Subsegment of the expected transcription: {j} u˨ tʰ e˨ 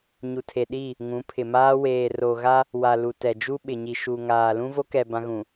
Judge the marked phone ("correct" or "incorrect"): incorrect